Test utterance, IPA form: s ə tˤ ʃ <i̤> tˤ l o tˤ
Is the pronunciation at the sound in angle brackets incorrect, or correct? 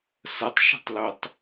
correct